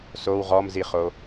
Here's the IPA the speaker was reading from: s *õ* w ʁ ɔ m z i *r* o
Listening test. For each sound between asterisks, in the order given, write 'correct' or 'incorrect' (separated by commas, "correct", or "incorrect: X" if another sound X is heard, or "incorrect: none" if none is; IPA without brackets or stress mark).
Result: incorrect: o, incorrect: χ